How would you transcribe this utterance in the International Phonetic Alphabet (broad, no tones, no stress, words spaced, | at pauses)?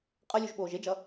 qʼʌlʲuʒɓoːʒ ed͡ʒʌ